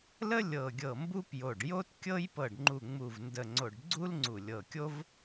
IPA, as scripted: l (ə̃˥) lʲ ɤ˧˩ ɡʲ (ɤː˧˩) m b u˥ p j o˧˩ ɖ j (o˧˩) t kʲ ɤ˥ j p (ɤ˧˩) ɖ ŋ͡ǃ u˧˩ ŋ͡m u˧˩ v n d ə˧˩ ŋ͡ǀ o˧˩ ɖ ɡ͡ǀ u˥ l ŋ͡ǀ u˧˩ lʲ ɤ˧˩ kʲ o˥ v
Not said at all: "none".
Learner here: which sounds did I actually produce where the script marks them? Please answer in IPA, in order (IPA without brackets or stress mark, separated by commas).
ə˥, ɤ˧˩, o˥, ɤ˧˩